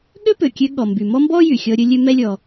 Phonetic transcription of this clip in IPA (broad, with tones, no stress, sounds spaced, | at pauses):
ɠ ø˥ p ø˩ kʲ ø˧ ɠ ɔ˩ m b y˩ m ɔ˥ m b ɔ˥ j y˩ xʲ ɔ˧ ɾʲ ɵ˧ lʲ ø˧ m ɛ˧ lʲ ɔ˩